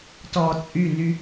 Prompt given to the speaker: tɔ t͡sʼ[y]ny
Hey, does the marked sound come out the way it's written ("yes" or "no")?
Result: yes